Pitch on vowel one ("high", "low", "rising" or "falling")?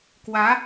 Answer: rising